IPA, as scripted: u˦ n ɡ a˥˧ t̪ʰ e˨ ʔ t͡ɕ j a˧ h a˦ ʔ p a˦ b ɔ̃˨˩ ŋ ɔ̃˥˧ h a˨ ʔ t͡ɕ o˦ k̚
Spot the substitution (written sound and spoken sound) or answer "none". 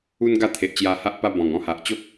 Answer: none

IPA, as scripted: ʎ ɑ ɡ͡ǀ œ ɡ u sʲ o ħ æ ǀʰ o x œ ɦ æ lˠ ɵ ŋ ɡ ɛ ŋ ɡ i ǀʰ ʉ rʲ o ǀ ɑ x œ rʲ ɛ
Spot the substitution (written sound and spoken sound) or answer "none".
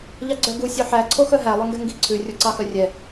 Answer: none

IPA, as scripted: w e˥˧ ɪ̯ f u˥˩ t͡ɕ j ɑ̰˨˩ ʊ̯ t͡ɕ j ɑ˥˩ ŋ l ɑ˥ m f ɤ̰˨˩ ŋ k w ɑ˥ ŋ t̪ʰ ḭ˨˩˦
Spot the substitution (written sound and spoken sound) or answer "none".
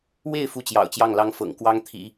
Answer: m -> ŋ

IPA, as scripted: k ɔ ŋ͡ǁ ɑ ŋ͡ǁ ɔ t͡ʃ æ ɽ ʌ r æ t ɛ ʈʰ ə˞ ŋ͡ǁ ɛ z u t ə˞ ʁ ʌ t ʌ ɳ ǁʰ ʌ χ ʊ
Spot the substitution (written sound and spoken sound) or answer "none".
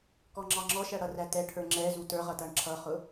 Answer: t͡ʃ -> ʃ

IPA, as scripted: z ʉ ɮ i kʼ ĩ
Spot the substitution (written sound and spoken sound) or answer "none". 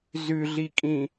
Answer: none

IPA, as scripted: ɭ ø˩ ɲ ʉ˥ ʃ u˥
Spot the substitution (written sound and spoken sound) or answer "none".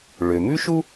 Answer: ɲ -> m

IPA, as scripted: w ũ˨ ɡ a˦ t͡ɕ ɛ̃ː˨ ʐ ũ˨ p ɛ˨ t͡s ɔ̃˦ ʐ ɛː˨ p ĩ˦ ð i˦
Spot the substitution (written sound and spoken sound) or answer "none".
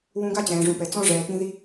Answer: none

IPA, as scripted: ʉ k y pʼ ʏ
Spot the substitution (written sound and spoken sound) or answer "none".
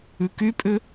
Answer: none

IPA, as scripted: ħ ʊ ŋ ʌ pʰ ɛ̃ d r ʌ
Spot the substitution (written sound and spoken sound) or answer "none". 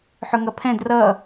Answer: none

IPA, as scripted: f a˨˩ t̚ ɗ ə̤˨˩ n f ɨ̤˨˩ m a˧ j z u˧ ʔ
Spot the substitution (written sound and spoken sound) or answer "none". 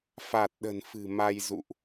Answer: u˧ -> ṵ˧˨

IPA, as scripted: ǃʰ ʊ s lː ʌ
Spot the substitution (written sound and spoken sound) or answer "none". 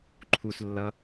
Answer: ʊ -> u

